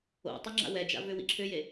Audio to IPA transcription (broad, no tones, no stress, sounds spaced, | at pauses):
o̰ tˤ ʏ ŋ͡ǁ a̰ w ɛ d͡ʒ a̰ v ʏ w ḭ ǁʰ ʏ j e